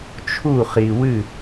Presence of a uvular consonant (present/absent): present